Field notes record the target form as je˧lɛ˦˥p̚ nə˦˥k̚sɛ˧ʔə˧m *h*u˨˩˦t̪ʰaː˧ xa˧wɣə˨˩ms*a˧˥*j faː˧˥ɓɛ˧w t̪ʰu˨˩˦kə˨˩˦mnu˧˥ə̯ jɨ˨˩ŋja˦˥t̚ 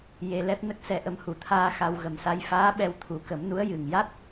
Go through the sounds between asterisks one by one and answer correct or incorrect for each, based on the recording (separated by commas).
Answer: correct, correct